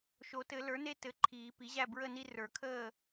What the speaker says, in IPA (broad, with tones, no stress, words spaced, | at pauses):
ʃo˨˩˦tɘ˨˩˦ lə˞˩˥ne˦ tɘ˩˥ ǃʰiː˨˩˦pi˩˥ʑæ˥˨ bɹə˥˨ni˦ rə˞˨˩˦kʰəː˥˨